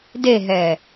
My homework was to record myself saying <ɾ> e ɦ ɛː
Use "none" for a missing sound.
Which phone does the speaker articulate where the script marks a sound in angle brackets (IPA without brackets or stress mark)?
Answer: d